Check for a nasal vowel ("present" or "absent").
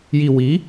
absent